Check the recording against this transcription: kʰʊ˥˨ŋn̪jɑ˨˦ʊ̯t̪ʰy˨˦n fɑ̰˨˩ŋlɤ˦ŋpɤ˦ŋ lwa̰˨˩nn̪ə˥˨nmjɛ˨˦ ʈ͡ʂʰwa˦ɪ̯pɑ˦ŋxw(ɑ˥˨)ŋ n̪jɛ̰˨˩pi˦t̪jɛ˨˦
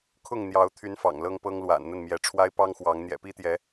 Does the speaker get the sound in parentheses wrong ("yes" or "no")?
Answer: yes